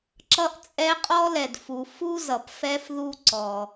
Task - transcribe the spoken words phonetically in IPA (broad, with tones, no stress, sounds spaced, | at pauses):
ǁ ʌ˦ ʔ t͡sʼ ɛ˦ qʼ ɔ˦ l ɛ˨ d f u˨ f u˦ z ʌ˨ p f ɛ˦ f ð u˦ ǀ ɔ˦